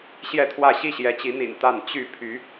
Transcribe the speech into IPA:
ɕ j ɛ˥˨ t̪ʰ w ä˥˨ ɕ i˥˨ ɕ j ɛ˨˦ t͡ɕ i˨˦ n̪ ḭ˨˩ n t̪ a˥˨ n t͡ɕ y˥˨ pʰ y˨˦

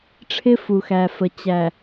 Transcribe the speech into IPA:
ʈ͡ʂʰ ɪ˦ f u˨ x æ˨ f ə˨ t͡ɕ æ˨

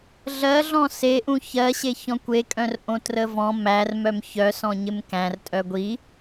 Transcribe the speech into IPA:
ɮ ɜ ɮ ɔ̃ s e ʔ ũ ç ɜ ɕ e ç ɔ̃ kʷ e kʼ œ̃ r ʔ õ t r ə v ɔ̃ m æ r m œ m ç œ s ɔ̃ ɲ ɪ m k æ̃ r tʼ œ ɡʷ i

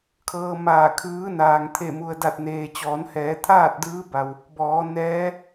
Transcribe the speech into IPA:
kʰ ɤː˧ m aː˧˩ kʰ ɯː˧˥ n aː˩ ŋ t̪ʰ e˧˩ m u˩ ə̯ d a˧˩ t̚ n eː˩ t͡ɕ ɔː˩˧ n h ɛː˩˧ t̪ʰ aː˥˨ t̚ d ɯː˧˥ b a˧ w | b ɔː˩˧ n ɛː˧˥

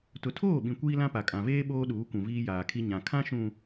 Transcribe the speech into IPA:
t ʊ˨ tʰ oː˦˨ ɓ ĩ˨ kʷ iː˦ l ã˦ p a˨ kʼ ã˨ v eː˦ ɓ oː˦ ɗ uː˨˦ kʷ ũ˨ v iː˦ j aː˨ kʰ i˦ ɲ ã˨ kʰ ã˦ ʃ ũ˨

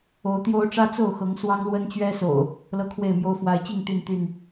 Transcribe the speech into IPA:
o˨˦ ʊ̯ t̪ j o˦ ʊ̯ ʈ͡ʂ ä˦ t͡s o˥˨ ʊ̯ x ɤ˨˦ ŋ s w ɑ˦ ŋ l w ə˦ n t͡ɕ ɥ ɛ˦ s o̰˨˩ ʊ̯ | l ɤ˦ kʰ w e˥˨ ɪ̯ m j o˦ ʊ̯ f w a˨˦ ɪ̯ t͡ɕ i˥˨ ŋ t̪ y˥˨ n t̪ y˥˨ n

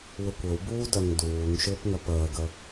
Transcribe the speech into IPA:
w ɘ kʷ ɘ w b uː d œ ŋ d uː ŋ ʃ ʏː p ŋ œ p əː ɡ ə

